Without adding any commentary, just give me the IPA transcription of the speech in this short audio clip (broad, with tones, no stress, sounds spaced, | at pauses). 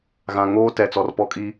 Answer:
ɣ ã˨ ŋ oː˦ t ɛ˨ t͡s ɔ˨ r p ɔ˦ kʼ i˦